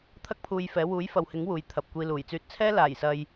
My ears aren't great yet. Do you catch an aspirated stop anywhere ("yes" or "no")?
yes